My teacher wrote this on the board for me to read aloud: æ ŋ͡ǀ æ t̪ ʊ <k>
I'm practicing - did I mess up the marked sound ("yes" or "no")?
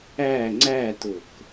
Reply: no